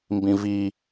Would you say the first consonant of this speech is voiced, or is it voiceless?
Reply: voiced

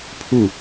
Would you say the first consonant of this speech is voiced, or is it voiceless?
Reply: voiceless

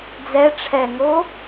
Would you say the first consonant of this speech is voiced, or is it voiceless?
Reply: voiced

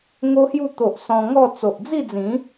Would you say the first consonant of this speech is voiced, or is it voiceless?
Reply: voiced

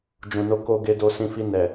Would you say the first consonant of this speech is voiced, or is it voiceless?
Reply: voiced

